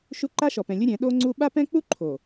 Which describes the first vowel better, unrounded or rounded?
rounded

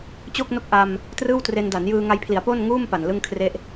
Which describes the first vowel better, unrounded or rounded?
rounded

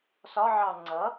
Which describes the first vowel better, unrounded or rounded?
rounded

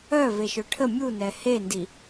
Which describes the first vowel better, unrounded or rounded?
rounded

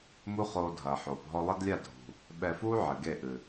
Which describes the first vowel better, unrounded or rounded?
rounded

